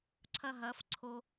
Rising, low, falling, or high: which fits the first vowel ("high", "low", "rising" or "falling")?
high